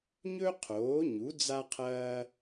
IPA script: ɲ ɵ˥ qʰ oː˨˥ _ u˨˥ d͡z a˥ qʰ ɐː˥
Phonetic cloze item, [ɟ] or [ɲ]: ɲ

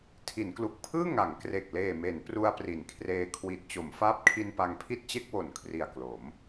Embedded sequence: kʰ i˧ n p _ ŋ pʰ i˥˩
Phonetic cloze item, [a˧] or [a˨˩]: a˧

